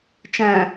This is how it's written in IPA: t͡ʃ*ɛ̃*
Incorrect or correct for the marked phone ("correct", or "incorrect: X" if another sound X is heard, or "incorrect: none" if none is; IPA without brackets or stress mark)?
incorrect: æ̃